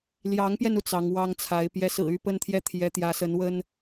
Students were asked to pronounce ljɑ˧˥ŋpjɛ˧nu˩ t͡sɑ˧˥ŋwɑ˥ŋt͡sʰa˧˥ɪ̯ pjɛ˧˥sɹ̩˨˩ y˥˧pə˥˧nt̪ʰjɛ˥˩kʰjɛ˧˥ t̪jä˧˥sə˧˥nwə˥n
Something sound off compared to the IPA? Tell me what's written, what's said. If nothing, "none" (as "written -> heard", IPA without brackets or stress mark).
kʰ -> t̪ʰ